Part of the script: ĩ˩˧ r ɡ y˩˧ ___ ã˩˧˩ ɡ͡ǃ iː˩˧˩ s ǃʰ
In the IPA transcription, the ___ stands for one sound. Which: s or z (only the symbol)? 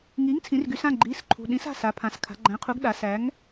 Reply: s